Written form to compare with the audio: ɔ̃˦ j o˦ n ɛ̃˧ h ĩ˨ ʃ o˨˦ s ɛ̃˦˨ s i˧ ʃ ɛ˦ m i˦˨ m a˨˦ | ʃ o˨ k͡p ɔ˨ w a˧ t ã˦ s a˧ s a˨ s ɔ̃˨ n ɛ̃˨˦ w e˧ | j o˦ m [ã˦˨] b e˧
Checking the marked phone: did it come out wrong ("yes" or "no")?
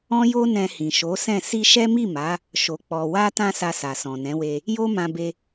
yes